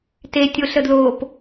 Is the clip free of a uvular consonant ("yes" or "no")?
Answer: yes